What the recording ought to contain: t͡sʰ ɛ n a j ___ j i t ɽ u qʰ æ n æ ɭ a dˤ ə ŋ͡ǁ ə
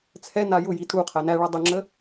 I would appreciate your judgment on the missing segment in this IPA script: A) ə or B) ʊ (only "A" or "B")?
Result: B